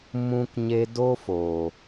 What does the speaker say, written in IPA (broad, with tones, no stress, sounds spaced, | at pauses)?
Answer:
m ũ˧ k ɲ e˧ d o˦ f o˨